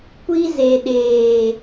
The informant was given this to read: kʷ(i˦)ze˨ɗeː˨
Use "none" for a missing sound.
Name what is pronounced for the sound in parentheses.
i˦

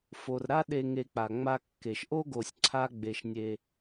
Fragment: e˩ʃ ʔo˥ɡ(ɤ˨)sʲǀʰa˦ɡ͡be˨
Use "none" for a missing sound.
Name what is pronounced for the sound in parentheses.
o˨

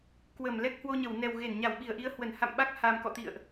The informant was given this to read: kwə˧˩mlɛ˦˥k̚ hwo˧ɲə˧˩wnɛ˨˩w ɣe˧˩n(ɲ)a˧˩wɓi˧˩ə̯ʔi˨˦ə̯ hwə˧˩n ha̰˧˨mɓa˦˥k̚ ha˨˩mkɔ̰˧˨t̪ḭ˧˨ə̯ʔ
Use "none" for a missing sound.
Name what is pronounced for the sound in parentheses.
ɲ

